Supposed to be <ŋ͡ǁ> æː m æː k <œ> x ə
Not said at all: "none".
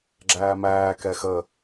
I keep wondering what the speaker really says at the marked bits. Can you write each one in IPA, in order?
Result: ɡ͡ǁ, ɛ

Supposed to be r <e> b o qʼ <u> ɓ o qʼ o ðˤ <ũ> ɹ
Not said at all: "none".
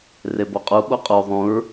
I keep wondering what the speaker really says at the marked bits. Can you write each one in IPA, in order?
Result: e, u, ũ

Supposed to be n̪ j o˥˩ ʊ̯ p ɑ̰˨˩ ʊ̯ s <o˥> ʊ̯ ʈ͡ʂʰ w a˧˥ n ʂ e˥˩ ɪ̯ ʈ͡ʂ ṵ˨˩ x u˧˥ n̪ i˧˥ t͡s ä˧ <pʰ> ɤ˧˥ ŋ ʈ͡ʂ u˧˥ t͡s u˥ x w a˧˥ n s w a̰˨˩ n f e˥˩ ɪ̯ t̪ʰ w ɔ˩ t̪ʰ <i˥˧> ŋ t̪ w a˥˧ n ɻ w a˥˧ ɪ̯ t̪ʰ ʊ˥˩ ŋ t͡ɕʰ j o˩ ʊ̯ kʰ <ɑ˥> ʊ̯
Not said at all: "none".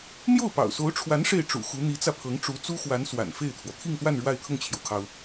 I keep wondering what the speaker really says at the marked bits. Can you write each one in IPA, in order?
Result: o˧˥, pʰ, i˥˧, ɑ˩

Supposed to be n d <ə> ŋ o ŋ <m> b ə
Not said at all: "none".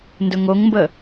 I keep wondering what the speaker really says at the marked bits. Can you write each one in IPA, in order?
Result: ɵ, m

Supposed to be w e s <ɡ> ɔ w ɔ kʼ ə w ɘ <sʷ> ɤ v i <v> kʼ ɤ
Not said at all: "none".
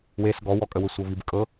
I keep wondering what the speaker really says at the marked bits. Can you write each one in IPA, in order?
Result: ɡ, sʷ, b

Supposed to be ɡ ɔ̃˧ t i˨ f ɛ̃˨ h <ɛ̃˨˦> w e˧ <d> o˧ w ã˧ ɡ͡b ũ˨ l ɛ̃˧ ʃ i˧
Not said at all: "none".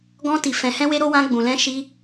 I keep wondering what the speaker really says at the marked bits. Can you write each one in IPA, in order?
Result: ɛ̃˧, ɾ

